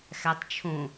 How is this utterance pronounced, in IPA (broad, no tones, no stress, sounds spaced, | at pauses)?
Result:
x æ tˤ t͡ʃʰ õ